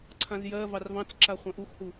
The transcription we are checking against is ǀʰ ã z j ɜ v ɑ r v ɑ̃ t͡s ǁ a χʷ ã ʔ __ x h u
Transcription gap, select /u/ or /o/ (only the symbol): u